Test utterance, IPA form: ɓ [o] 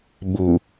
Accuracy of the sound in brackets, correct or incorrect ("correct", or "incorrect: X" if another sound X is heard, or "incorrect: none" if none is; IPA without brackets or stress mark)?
incorrect: u